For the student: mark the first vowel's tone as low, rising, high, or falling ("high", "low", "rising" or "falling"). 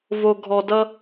low